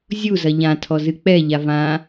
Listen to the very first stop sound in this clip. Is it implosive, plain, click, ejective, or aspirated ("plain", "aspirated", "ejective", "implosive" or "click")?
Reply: aspirated